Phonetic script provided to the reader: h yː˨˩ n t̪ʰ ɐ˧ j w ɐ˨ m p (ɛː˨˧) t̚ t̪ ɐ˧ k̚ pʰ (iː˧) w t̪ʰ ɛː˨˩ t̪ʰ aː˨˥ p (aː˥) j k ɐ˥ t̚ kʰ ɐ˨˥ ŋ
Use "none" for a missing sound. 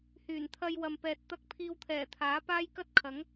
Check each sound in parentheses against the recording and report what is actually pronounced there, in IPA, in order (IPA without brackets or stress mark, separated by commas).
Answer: ɛː˨, iː˧, aː˥